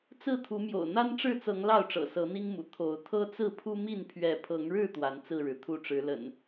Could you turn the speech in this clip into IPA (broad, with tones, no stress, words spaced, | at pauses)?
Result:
t͡sɹ̩˥˨t̪ʰu˨˦mjo̰˨˩ʊ̯ n̪a˦nʈ͡ʂɻ̩˥˨t͡sɤ˨˦ŋ lɑ˥˨ʊ̯ʈ͡ʂɤ̰˨˩ sɤ˨˦n̪i˦ŋmṵ˨˩ t̪ʰo˨˦ʊ̯ t̪ʰɤ˦t͡sɹ̩˥˨pʰu˦mi˥˨n pʰɥɛ˨˦pʰɤ˨˦ŋɻɻ̩˥˨ t̪wa˨˦nt͡sɹ̩˥˨ɻɻ̩˩ t̪ʰu˥˨ʈ͡ʂɻ̩˨˦lə̰˨˩n